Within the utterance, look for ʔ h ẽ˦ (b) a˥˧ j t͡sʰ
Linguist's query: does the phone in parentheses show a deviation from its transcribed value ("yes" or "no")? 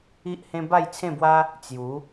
no